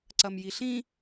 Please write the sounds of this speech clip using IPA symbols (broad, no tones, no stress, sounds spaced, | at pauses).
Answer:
ǀ ɐ m j i ɬ ĩ